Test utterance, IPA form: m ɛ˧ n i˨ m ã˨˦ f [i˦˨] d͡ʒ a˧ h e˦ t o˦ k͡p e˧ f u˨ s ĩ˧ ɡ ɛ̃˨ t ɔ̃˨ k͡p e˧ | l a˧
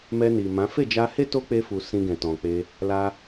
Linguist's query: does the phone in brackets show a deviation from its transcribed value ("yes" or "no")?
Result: yes